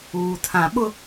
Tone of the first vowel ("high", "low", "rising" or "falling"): low